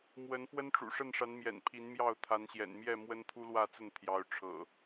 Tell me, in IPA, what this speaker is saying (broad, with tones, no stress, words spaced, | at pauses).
mwə˨˦n fwə˦nʈ͡ʂṵ˨˩ ʂə˥˨nʂa˨˦nmjɛ̰˨˩n pʰi˨˦nmjɑ˥˨ʊ̯ t̪ʰa˨˦nɕjɛ̰˨˩nmjɛ˥˨ mwə˦nt̪ʰu˦lwä˥˨t͡sə˥˨n t̪ʰjɑ˨˦ʊ̯ʈ͡ʂʰɤ̰˨˩